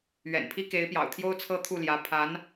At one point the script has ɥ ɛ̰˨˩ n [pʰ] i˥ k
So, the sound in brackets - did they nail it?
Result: yes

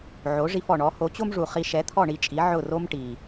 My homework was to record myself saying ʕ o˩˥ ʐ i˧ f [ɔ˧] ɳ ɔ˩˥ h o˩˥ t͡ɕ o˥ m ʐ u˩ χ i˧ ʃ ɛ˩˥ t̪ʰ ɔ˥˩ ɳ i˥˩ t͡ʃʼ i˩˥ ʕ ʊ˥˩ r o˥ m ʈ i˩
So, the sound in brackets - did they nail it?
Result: no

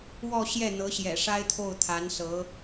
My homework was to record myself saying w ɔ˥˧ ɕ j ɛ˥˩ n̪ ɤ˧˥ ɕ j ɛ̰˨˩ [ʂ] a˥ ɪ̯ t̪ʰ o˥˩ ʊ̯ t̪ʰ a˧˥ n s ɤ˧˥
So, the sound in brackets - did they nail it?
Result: yes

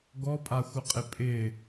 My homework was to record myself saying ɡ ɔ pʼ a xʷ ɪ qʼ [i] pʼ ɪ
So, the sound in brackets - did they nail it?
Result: no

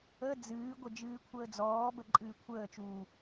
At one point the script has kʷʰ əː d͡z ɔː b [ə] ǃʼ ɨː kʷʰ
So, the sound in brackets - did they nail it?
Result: yes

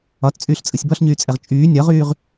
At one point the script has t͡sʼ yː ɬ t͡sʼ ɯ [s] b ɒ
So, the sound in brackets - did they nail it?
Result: no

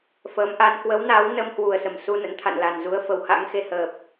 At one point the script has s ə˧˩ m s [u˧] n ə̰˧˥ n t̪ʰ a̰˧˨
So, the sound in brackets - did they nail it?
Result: yes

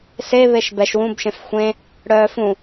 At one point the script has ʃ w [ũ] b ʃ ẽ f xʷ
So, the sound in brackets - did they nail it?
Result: yes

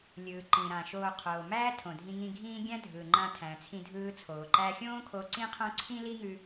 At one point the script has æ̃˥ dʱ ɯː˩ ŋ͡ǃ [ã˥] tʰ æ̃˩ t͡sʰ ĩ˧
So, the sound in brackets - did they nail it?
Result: no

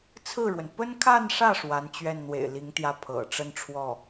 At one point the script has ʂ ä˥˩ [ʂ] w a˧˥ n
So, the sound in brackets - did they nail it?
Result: yes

